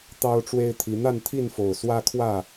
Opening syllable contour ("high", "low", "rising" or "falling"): high